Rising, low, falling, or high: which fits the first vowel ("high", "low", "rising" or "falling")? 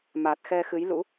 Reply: low